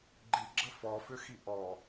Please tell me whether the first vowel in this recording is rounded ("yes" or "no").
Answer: no